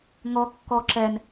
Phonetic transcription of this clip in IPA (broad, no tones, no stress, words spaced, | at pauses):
ŋɔ kːɔ ǁɛn